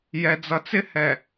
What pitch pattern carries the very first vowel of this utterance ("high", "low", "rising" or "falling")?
low